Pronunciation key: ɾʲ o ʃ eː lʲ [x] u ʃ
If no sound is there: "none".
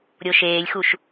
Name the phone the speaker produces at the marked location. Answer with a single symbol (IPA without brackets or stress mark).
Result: x